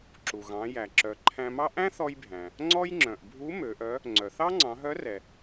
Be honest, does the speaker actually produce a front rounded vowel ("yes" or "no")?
yes